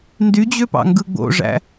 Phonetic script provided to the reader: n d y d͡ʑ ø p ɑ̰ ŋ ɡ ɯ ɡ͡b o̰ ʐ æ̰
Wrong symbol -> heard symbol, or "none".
none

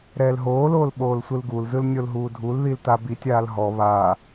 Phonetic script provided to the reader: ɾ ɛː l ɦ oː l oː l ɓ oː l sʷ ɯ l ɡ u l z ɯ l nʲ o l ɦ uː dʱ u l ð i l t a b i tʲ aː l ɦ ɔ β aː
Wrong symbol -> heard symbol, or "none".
none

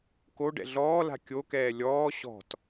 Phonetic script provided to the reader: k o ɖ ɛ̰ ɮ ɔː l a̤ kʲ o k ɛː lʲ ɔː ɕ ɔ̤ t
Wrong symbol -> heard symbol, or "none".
none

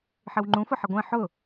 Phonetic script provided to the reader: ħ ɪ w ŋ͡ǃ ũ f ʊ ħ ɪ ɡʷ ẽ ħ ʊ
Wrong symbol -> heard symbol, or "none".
none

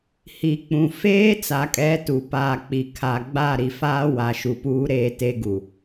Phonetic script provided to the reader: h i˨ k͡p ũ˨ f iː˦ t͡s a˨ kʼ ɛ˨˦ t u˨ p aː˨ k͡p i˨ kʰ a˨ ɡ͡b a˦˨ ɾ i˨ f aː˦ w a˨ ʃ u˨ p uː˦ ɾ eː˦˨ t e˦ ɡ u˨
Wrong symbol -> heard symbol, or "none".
iː˦ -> eː˦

